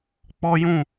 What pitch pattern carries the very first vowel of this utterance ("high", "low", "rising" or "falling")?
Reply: high